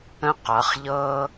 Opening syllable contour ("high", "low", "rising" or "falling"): high